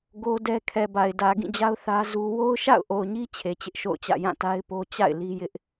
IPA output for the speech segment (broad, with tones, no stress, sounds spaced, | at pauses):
ɡ o˦ d ɛ˦ kʰ ɛ˨ b a˨ ɪ̯ d ä˨ ɡ ĩ˦˨ d͡ʑ a˦ ʊ̯ θ ä˦ z u˦ w o˦ ʊ̯ ʃ a̰˦˨ ʊ̯ ʔ o˨ ʊ̯ ɲ i˦ t͡ɕʰ e˨ t͡ɕ ɪ˦ ʔ ʃ o̰˦˨ ʊ̯ t͡ɕ ä̰˦˨ j ã˦˨ t a˦ ɪ̯ p o˦ t͡ɕ a̰˦˨ ɪ̯ l i˦ j ɪ˦ ʔ